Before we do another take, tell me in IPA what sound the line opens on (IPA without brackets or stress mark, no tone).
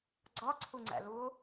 ɡ͡ǀ